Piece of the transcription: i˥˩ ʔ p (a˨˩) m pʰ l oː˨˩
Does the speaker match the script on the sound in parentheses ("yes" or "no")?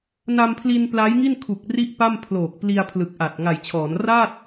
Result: no